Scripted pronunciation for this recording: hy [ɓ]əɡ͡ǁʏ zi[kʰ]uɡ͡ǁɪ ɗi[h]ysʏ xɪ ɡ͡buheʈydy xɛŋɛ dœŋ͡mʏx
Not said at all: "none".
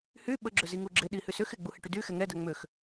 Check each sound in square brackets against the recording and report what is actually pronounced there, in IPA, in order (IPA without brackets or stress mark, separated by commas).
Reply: ɓ, ŋ, h